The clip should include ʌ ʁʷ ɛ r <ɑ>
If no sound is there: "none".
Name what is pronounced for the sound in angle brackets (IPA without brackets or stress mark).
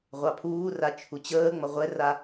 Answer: a